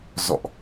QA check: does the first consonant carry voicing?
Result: yes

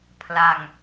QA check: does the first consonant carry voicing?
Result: no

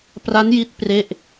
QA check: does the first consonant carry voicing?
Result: no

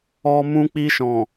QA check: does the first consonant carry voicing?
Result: yes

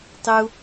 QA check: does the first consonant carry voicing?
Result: no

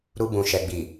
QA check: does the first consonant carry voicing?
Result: yes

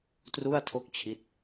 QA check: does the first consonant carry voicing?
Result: no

